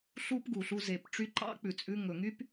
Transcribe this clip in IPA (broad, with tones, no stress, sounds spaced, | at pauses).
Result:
ɬ u˥ p ɡ u˩ ɬ u˧ z e˩ p ʈ͡ʂ y˧ ǃ ɑ̰˥ k͡p ʉ˩ t͡sʼ ʉ˧ ŋ ɵ˩ ŋ y˥ p